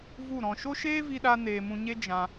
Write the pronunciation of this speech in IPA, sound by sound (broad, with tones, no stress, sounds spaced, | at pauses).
v u˦˨ ɾ ɔ̃˧ ʃ o˦ ʃ eː˦ v i˧ ɗ a˧ n eː˧ m ũ˧ ɲ e˦ d͡ʒ ã˧